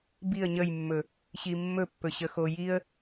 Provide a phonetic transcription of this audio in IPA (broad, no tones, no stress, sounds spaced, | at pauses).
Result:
b i ə̯ ɲ ə j mː ɵ | ɕ i mː ɵ pː ɵ ɕ ə x o j i ə̯